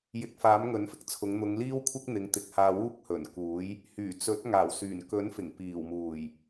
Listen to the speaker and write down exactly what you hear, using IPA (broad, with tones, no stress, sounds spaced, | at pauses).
j ɪ˨˥ k̚ f aː˨˥ m ŋ ɵ˨˥ n f ɪ˨˥ k̚ t͡sʰ ʊ˨˧ ŋ n̪ ʊ˨˧ ŋ l iː˥ w kʷʰ ɪ˥ k̚ n̪ ɪ˨˧ ŋ t̪ ɪ˨˥ k̚ h aː˧ w uː˥ k̚ h ɵ˨˩ n k uː˨˥ j | h yː˨˩ t͡s ɵ˨˥ t̚ ŋ aː˨˩ w s yː˨˩ n k ɵ˨˥ n f ɪ˨˩ ŋ p iː˨˩ w m uː˨˩ j